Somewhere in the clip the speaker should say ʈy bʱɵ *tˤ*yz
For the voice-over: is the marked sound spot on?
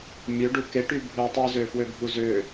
yes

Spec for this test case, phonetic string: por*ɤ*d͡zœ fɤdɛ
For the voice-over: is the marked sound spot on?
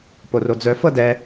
no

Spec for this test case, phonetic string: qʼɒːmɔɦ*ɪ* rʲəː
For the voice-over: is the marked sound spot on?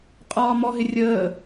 yes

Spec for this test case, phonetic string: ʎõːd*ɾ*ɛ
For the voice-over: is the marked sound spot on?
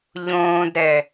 yes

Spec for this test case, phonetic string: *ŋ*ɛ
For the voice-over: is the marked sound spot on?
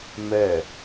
no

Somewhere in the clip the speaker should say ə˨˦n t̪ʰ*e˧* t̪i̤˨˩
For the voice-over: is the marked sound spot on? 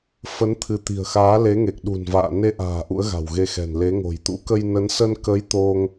no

